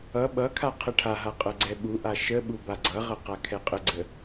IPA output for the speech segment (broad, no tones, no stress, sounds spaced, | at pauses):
ʌ ɓ ʌ kʰ a qʰ ə ʈʰ a ɦ a qʼ ʌ ɡ͡ǀ ɛ ɓ u ʔ a ʃ ə ɓ u b a ɡ͡ǀ ʌ ʁ ʌ q a kʰ ɛ qʼ ə ɡ͡ǀ ə